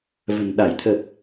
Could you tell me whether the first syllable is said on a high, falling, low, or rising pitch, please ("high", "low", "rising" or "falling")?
low